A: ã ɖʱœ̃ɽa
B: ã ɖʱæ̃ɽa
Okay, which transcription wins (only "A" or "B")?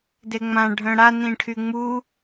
A